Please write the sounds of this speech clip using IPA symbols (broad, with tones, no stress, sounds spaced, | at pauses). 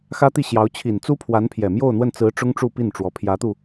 x ä˥ t̪ i˥˩ ɕ j ɑ˧˥ ʊ̯ t͡ɕʰ i˨˩ n t͡s u˥ pʰ w a˧˥ n pʰ j ɛ˨˩ m j o˥˧ ʊ̯ n̪ w ə˥˩ n t͡s ɹ̩˧˥ ʈ͡ʂ ʊ˥ ŋ ʈ͡ʂ u˥˧ p i˥˩ n ʈ͡ʂ w ɔ˧˥ pʰ j ä˧˥ t̪ u˧